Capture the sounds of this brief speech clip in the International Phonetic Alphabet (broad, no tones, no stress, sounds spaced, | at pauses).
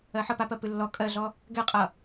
ɜ ħ ʌ p a p ɜ p ɨ lː ɔ kʼ ɜ ɮ ɔ | ɡ ɛ qʼ ʌ